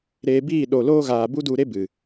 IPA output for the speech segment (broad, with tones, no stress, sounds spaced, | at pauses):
ɾ eː˧ b iː˦˨ ɗ o˨ l oː˧ ɣ aː˨ b u˦ d u˧ ɾ e˦ b ɨ˨